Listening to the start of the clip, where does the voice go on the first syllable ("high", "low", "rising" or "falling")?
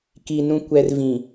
low